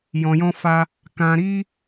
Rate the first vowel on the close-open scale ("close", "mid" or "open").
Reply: mid